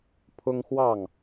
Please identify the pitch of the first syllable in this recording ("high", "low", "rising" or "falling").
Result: high